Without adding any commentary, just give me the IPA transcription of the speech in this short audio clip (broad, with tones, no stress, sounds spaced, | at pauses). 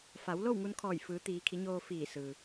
f a˩˧ w l o˥˨ w ŋ u˧ n kʰ ɔː˧˩ j f ɯː˩˧ t̪ iː˩˧ kʰ i˩˧ ɲ oː˧ f iː˧˩ s ɯː˩